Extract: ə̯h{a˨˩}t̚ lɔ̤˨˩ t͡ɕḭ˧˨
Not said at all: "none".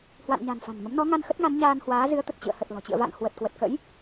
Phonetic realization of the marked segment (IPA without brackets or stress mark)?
ə˨˩